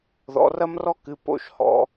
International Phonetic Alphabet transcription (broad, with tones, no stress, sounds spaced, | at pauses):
ð ɔ̰˨˦ r ɐ˥ m r ɔ˥ k ɨ˨˦ p o̰˥˩ ʃ h ɔ̰˨˦